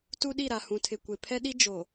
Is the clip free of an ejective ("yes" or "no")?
yes